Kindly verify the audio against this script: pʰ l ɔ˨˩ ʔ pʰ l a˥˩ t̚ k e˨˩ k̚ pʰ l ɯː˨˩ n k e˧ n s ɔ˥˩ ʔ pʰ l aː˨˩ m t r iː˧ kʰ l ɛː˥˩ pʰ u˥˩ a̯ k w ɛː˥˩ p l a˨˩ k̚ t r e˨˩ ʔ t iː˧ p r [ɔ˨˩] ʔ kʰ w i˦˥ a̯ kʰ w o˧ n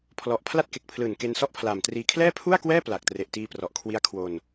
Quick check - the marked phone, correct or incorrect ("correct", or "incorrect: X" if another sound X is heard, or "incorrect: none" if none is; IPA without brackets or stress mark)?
correct